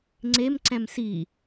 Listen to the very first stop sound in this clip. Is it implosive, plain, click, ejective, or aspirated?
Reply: click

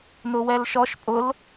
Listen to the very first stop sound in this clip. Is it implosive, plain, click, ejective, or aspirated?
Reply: ejective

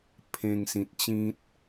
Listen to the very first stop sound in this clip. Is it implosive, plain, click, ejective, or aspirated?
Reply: aspirated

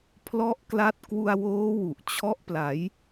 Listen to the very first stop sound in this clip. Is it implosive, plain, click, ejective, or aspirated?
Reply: aspirated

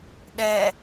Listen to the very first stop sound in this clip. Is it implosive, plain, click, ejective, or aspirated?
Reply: implosive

